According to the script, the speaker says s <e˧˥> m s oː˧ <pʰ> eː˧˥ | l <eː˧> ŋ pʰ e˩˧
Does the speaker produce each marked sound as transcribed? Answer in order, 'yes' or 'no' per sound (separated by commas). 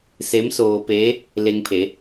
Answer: yes, no, no